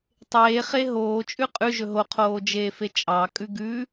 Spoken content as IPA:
tˤ eː χ e ɦ oː t͡ʃʼ ʉ qʼ ʉ ʒ ɵ ɦ o qʰ oː d͡ʒ eː f e t͡ʃʼ ɑ kʼ ʉ ɡ ʉ

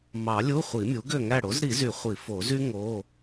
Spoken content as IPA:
m ɑ˨˩˦ lʲ u˧˥˧ χʷ i˨˩˦ mʲ u˩˥ ɡ ø˥˨ ŋ æ˥˨ ɽ o˩˥ z ɾ i˨˩˦ z y˨˩˦ χʷ i˨˩˦ f o˨˩˦ z y˥ ŋ o˧˥˧

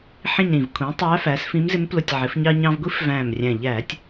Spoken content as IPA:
ħ ĩ˦˨ ɲ ɾ ĩ˨˩ v kʷʰ ĩ˩˥ tˤ æ˧˥ f æ˩˥ s f ĩ˧˥ m z ɪ˧˥ m p l ʊ˦˨ tʲ ʕ ɪ˩˥ f ɲ ɑ˥ ɲ ɑ̃˥ v ɡʷ i˧˥ f v æ̃˨˩ m rʲ æ̃˨˩ ʎ æ˧˩˧ tʲ

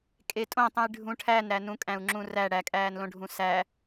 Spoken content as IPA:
kʼ e tʼ õ tˤ ũ j ɖʱ ũ ʈʰ æ n ɾ æ n ũ kʼ æ̃ u̯ ŋ͡ǁ ũ r æ ɽ æ kʼ æː n l õ ɖʱ ũ s æ

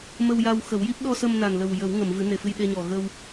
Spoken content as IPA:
m ə˧ w j a˧ w x ə˨˩˦ w j i˦˥ p̚ ɗ ɔ˧ s ə˧ m n a˨˩ n l ə˨˩ w j ə˨˩˦ w ŋ ə˨˩˨ m v ɨ˨˩˦ n e˨˩ f ɨ˧ j ɗ e˧ ɲ ɔ˨˩ ɣ ə˧ w

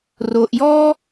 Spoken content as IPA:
r o˨ ʔ j ɔ˥

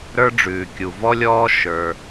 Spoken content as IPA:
ɾ ə˞˧ ɖ͡ʐ ʉː˩ kʲ u˩ v ɔ˧ lʲ ɔː˧ ʃ ə˞˩

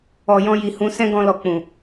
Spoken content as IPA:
ɔ˨ j ɔ̃˧ j i˨ h ũ˨˦ s ɛ̃˦ ɡ ɔ̃˧ l ɔ˨ k͡p ũ˨

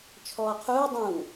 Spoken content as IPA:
t͡ʃʰ ɔː qʰ uː dˤ ũː

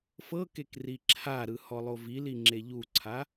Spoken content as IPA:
f ɤ k e k r i ǁʰ a ɾ ɯ h ɔ lˠ o v i l i ŋ͡ǁ e ʎ u ǀʰ a

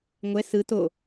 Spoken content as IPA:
ŋʷ ɛ s ɯ t o

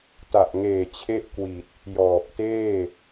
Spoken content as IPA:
t a˨˩ ʔ ŋ eː˨˩ t͡ɕʰ e˦˥ ʔ k w i˨˩ t̚ | j ɔː˨˩ p̚ t eː˥˩

